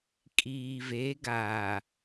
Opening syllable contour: low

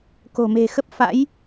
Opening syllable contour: low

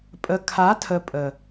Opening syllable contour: low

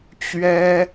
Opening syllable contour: high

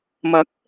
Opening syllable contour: rising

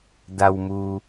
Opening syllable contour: low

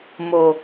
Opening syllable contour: low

